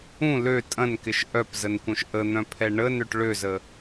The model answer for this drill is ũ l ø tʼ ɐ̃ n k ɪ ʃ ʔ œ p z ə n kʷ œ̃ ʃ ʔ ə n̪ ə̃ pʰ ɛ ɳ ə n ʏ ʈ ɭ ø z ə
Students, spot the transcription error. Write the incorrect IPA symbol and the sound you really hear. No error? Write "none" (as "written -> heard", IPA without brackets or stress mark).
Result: ə̃ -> œ̃